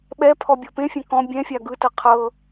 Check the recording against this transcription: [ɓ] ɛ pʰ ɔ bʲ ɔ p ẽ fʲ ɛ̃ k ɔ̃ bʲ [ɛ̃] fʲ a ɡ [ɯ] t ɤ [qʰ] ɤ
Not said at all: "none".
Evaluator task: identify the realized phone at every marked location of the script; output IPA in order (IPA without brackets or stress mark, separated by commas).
ɓ, ɛ̃, ɯ, qʰ